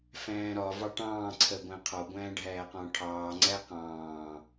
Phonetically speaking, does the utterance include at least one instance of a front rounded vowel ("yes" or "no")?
no